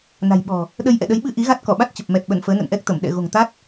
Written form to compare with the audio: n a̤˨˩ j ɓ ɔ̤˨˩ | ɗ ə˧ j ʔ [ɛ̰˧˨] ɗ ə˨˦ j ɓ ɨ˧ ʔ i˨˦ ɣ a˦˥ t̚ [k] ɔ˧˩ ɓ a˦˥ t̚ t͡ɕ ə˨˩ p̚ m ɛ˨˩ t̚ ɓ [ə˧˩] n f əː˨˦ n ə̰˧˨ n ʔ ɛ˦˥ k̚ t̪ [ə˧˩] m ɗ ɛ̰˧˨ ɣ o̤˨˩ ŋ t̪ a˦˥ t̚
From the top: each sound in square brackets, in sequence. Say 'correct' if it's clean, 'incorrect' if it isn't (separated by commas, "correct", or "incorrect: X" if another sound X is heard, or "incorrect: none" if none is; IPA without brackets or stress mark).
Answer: correct, correct, correct, correct